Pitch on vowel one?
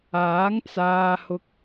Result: rising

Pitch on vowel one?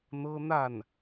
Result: high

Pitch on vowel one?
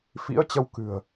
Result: rising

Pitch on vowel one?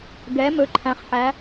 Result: rising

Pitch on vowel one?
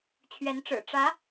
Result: rising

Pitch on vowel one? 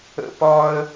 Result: high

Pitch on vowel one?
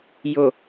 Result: low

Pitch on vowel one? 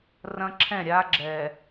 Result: high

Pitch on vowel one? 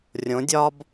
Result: rising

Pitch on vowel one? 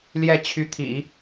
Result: falling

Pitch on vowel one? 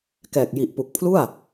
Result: low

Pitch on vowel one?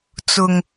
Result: low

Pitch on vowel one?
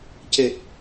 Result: low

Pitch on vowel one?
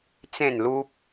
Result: falling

